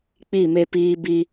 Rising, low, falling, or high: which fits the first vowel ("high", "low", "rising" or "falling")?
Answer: falling